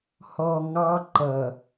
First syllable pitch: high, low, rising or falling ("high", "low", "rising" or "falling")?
low